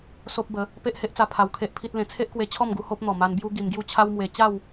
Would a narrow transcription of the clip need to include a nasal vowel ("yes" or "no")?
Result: yes